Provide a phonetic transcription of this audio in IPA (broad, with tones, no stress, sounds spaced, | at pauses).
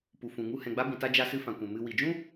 p u˨ f ũ˨ ŋ u˧ h ɛ̃˨ ɡ͡b a˧ b ĩ˨ t a˧ d͡ʒ a˧ s ɨ˧ f ã˨ kʷ ɛ̃˨ m ɨ˨ w i˨ d͡ʒ ũ˦